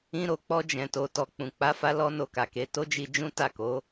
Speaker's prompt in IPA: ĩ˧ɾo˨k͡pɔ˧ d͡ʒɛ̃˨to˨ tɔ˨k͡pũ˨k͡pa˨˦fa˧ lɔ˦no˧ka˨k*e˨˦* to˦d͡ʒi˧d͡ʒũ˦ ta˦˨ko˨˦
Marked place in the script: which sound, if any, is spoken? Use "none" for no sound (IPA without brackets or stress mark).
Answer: e˨˦